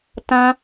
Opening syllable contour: high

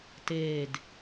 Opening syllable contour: low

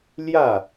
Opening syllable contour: falling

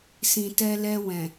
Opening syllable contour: low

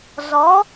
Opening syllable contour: rising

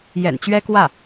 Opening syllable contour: low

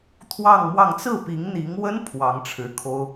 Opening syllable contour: falling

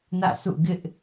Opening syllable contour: falling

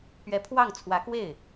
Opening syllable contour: rising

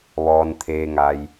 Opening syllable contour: low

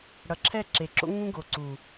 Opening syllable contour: low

